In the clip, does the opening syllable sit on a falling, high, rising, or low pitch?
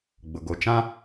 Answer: low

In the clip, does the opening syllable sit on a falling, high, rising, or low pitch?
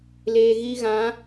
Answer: low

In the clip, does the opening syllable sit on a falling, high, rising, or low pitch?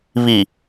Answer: low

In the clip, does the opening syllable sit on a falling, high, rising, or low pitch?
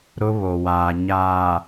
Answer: high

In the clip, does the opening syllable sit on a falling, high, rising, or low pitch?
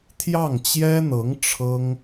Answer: falling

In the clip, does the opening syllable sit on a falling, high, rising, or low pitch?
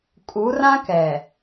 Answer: rising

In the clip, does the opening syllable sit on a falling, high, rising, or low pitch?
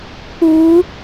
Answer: rising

